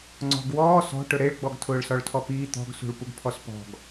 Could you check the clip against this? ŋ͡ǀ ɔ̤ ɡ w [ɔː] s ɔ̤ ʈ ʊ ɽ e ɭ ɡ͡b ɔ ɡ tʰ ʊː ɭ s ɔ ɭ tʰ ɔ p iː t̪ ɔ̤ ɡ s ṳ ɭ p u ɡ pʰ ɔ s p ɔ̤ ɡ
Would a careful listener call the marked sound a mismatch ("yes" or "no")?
no